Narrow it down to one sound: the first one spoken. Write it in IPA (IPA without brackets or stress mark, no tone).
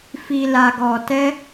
f